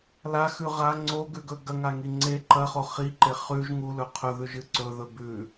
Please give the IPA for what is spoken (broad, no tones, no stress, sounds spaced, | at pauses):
l a x ʉ ʁ a ŋ͡ǀ o ɡ ʉ ɡ ɵ ɡ ɐ ŋ a ŋ i ŋ͡ǀ e ǃ ɐ χ o χ i ǃ e χ ʉ ʒ ŋ u l ɵ qʰ ɵ ð ʉ ʒ ɨ ǀ ɵ ð ɵ b ʉ